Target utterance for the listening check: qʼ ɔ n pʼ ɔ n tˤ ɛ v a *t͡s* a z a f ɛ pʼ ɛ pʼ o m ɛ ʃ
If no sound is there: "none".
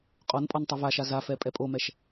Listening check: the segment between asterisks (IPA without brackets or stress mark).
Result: ʃ